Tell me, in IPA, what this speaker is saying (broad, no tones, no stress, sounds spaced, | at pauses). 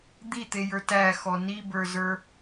d̪ i t̪ e j ə˞ t æ x ɔ n i b ə˞ z ə˞